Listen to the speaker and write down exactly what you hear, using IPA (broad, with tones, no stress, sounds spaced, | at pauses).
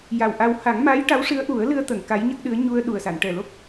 j a˨˩ w ʔ a˧ w h a˨˩˦ ŋ m a˧˥ j ʈ a˧˥ w ʂ ɨ˧˥ ə̯ ʔ u˨˩˦ ə̯ l ɨ˧ ə̯ t̪ ə˨˩˨ ŋ k a˧˥ j ɲ ə˦˥ k̚ ɗ ɨ˧˥ ə̯ ɲ u˧ ə̯ ɗ u˨˩ ə̯ s a˨˩˨ n ʈ ɛ˨˩ l o˦˥ k̚